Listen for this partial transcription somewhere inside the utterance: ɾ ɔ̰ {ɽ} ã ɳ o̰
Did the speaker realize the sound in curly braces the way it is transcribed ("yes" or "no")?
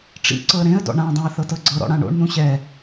yes